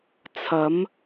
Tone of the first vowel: rising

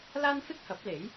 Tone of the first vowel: high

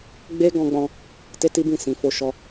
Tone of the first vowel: high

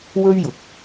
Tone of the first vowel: high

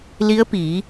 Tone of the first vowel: rising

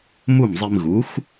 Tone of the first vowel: falling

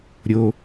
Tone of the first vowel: high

